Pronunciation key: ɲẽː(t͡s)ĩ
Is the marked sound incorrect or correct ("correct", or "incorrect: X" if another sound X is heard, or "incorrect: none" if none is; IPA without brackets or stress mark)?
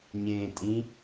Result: incorrect: tʼ